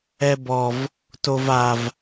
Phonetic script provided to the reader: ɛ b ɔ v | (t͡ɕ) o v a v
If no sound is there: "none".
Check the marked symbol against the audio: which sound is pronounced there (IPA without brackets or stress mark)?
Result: t